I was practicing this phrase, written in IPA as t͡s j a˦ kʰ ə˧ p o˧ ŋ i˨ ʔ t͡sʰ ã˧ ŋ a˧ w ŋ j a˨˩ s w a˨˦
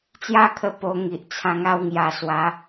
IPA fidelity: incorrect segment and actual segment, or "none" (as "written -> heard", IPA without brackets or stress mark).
none